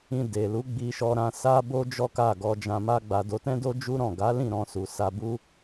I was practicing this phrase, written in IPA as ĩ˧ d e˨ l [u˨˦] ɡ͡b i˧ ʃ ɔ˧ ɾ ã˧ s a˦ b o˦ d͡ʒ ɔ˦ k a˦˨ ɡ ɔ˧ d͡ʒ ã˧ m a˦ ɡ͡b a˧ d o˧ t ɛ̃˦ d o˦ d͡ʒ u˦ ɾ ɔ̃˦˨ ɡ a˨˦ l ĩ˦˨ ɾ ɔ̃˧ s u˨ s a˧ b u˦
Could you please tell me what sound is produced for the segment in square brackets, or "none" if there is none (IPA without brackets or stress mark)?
u˨˦